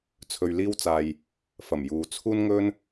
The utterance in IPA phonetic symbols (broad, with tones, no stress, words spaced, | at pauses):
t͡sʰɵ˨ɥliː˧wt͡saː˨j | fɐ˨˩mjuː˨˧t͡sʰuː˥n ŋɵ˧n